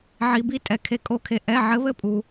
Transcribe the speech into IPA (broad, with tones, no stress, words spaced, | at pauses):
ʕi˩bi˨˥tʼɛ˩ kʰe˩kʼo˧˩˧kʰe˩ ʔɛ˩˧˩ ʕɘ˨˥βɘ˥˨pʼu˩